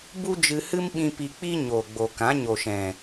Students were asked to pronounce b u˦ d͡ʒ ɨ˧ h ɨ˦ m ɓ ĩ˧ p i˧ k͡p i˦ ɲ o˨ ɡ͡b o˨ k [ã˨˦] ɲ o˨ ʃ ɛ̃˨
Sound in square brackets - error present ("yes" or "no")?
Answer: no